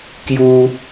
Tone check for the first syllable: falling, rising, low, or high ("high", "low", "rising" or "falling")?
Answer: high